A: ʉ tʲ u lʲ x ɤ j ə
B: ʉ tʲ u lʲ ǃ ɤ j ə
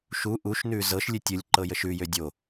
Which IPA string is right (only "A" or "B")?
B